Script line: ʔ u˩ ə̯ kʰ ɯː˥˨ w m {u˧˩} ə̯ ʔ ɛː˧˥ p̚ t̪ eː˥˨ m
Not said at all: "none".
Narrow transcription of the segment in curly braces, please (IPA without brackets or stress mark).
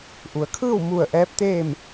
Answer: u˧˩